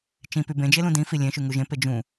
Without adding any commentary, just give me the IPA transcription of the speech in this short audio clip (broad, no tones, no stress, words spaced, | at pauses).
t͡ʃĩpy bẽd͡ʒe lũdĩfi lʲẽʃy ŋuʒẽpe d͡ʒũ